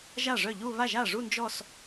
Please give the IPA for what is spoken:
ʒ a˥˩ ʐ œ˥˩ ʎ u˥˧ β a˥˩ ʒ a˥˩ ʐ u˥˧ n d͡ʒ ɔ˥˧ s

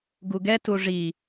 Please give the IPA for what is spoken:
ɡ u ɡ ɛ t u ʐ i

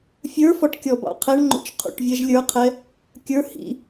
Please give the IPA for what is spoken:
fʲ ə˞ f ɔ ʈ kʲ ɔ b ɑ̰ qʰ ɛ ɳ ŋ͡ǃ ṵ t͡ʃ qʰ ṵ ʈ vʲ ɛ ʒ lʲ ə˞ qʰ ɛ | kʲ ə˞ h ḭ

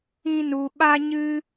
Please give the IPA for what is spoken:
ĩ˦ n u˧ ɓ a˦ ɲ ɨ˦

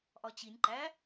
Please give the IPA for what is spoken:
ʔ ɒ t͡ɕ i nʲ ǃ æ

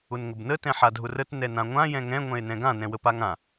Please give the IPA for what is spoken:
ʊ n ŋ ə b n ə t ɛ̃ ħ a dʱ ʊ r ə t n ɛ n ã ŋʷ ã j ɛ̃ ŋ ɛ̃ ŋʷ ɛ̃ e̯ n ɛ̃ ɡ ã n ɛ̃ w ə p a ŋ ã

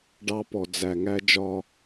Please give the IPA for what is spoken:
ɖ ɑ˦ p ɔ˨ d͡z æ˨ ŋ æ˦ d͡ʒ ɒ˦

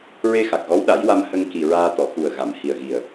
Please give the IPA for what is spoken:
ɹ e˧ x a˨˩ k̚ ɣ ɔ˧˥ w ɗ a˨˩˦ j w a˧ m h ə˧ ŋ k i˨˩ ɹ aː˧ t̪ ɔ˨˩˨ x u˨˩ ə̯ ɣ a˨˩˨ m h i˨˩ ə̯ ɣ i˨˩ ə̯

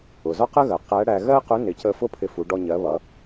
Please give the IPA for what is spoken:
ʊ˩ z ɒ˥ q ə˥ ɣ ɜ˩ q æ˧˥ ɽ æ˧ ɣ ɜ˥ q ʊ˧˥ n ɪ˩˧ c ə˧ f ʊ˥ pʰ ɪ˧ f u˩˧ ɖ ɔ˧ ɲ ɜ˩˧ β ʌ˩˧

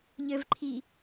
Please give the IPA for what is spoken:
ʎ ɘ v ǃʰ i

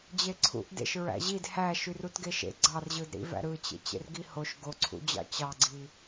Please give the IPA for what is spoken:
d͡ʑ e ǀʰ ṵ ʔ d ḛ ʃ ɹ æ̰ ʑ i d h æ ʃ y r u t ɡ e ʃ ḛ ɡ͡ǀ ɑ r ʑ ɯ d ɾ ḭ v æ̰ ɾ ɯ t͡ɕ ḛ t͡ɕ ḛ r ɡ i h o ʃ ɡ o ǀʰ ṵ d͡ʑ ɑ̰ t͡ɕ ɑ ɡ͡ǀ i

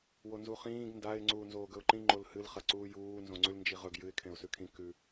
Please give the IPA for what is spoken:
w o n z u χ ĩː ɡ n d a ɪ̯ ŋ͡ǀ uː n z oː ɡ ɵ ʊ̯ ǃ ĩ ŋ͡ǃ o l h ɨ l χ ɐ ǀ uː j uː n z õ ŋ͡ǀ ʉ l n d͡ʒ i ʁ ɵ ɡ j ɨ ɪ̯ kʰ ẽ ʊ̯ s ʉ kʰ ĩ k ʉ

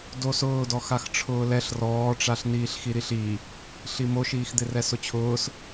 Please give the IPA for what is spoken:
d o s ʊː d ɔ x a x ʈ͡ʂʰ ʊː l ɛ ɬ r ɔː ʈ͡ʂ a ɬ n iː ɬ x i ɾ i ɬ i | ɬ i m o ʃ iː x d̪ ɪ r ɛ s ʊ t͡ɕʰ ʊː s

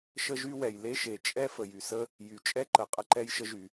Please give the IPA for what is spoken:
ʃ ə˥ ʒ y˥ w ɛ˩ j l e˥ ʃ e˩ t͡ʃʼ ɛ˥ f ə˩ j y˩ s ə˥ | j y˩ t͡ʃʼ ɛ˥ ǃ ə˩ qʼ ə˥ ǃ ɛ˥ j ʃ ə˥ ʒ y˩

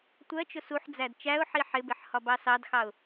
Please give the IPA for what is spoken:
tʷ ɜ t͡ʃ ʊ s u ħ d͡z æ d t͡ʃ æ ʊ̯ ħ i ħ ɪ b ɪ ħ h ɒ b ɑ s ɑ d x ɑ ʊ̯

